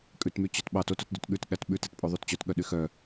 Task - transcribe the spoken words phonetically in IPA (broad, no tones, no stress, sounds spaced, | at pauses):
kʼ ʉ t m y t͡ɕ œ t ɓ ɑ t o t o t d y t ɠ ʉ t ɠ æ t ɓ ʉ t e t pʼ o ðˤ u t t͡ɕ œ t ɠ œ ɗ y x œ